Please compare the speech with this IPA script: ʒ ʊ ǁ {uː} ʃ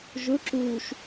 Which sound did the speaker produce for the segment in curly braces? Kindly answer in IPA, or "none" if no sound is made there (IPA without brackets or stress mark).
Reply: uː